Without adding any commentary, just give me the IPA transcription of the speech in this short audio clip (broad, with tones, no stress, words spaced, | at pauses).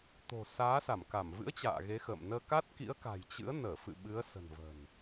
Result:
t̪o̤˨˩saː˨˦sa˧˩mka˧˩m vɨ̰˧˥ə̯ t͡ɕa̰ː˧˨ɣe˨˦ xə̰˧˨m nəː˧ ka˦˥t̚kḭ˧˥ə̯ka̤˨˩j t͡ɕɨ̰˧˥ə̯ nəː˧˩fɨ̰˧˨ ɓɨ˨˦ə̯sə̤˨˩nvə̤˨˩n